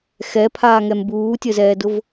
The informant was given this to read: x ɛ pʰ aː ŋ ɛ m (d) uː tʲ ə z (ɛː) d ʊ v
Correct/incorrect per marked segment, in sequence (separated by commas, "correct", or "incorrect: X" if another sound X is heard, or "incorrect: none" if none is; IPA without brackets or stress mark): incorrect: b, correct